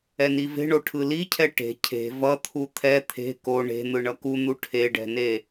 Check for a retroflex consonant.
present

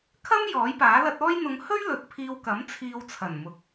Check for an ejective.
absent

